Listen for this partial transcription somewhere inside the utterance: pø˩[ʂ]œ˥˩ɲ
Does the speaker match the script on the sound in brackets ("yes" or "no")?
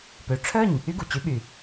no